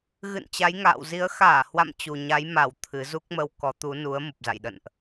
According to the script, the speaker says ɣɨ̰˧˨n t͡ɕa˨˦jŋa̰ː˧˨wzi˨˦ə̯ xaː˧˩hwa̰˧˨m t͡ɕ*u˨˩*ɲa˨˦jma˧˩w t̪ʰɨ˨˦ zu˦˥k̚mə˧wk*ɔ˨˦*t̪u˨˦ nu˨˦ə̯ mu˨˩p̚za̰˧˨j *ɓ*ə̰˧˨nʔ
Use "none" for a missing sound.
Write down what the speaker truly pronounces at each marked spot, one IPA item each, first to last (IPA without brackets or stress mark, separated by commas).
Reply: u˨˩, ɔ˨˦, ɗ